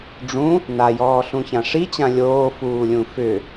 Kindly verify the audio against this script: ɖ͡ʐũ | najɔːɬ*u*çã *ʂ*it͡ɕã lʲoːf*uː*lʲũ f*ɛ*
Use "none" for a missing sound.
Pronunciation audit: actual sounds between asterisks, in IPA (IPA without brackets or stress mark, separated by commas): ũ, ʂ, uː, ʏ